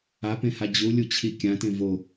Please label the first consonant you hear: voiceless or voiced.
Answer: voiceless